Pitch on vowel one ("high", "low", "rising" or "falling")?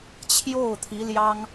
falling